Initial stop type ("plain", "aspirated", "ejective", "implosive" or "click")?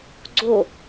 click